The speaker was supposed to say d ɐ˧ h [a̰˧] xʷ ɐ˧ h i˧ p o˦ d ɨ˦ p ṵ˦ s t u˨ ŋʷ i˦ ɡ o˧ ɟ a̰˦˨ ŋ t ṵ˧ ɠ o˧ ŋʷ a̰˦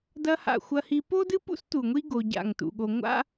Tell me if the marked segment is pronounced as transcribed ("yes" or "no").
no